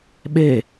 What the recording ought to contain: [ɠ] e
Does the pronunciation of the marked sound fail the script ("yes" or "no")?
yes